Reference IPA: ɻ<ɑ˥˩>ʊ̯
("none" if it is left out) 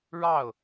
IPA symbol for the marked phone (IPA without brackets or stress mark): ɑ˥˩